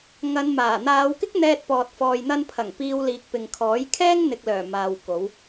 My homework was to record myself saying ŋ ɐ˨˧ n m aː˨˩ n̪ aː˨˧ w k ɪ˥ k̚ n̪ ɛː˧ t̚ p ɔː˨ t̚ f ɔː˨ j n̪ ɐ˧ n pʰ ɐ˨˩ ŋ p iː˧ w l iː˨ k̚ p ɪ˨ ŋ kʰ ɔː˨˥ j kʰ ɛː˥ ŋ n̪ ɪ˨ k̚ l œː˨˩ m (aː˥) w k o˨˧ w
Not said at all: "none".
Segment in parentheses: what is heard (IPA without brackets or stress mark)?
aː˨